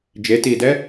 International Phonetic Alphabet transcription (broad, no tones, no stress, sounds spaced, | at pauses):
d͡ʒ e t iː d ɛ